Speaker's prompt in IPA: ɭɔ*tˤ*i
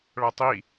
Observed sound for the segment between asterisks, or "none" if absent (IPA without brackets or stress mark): tˤ